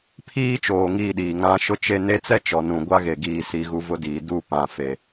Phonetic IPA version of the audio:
pʰ iː˦ t͡ʃ oː˨ ŋ iː˦ ɗ iː˨ ŋ ã˦ ʃ ʊ˦ t͡ʃ e˦ n e˦ t͡s ɛ˦ t͡ʃ ɔ˨ n ũ˨ ɡʷ a˦ ɣ e˨ ɡ iː˨ s i˨ ɣ u˨ v ʊ˦ d iː˨ d u˦˨ p ã˨ f e˨

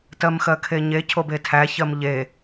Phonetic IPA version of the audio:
t ɜ m x ɜ kʰ e ɲ e cʰ o b e tʰ æ ç ɜ m ʎ e

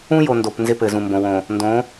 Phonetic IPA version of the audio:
ũ˦ j o˨ n d o˨ p n z ɪ˦ p ɘ˨ z ũ˨ m b õ˨ w õː˨ | n d õː˨˦

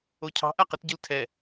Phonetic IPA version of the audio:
o cʰ ɑ̤ ʔ a q ə t ɟ ɯ l tʰ ɛ

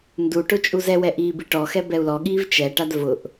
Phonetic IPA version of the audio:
n d u ʈ ʊ t͡ʃʼ u z ɛ w ɛ ʔ iː b i ʈ ɔ x ɛ b ɛ u̯ l ɔ ɠ iː v t͡ʃ ɛ ʈ a d v ʊ ʔ

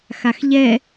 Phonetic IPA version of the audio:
x a x ʎ ɛ

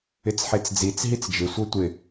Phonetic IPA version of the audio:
ɪ t͡s ħ e t͡s d͡z i t͡s ɦ i t͡s d͡ʒ ɪ sʷ ɤ tʷ ɪ

